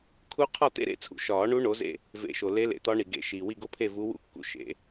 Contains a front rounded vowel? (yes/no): no